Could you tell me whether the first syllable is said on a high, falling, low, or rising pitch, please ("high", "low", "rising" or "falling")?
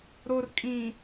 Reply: low